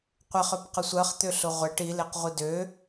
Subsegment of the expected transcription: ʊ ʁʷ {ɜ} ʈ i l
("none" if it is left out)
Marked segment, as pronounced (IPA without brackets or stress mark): æ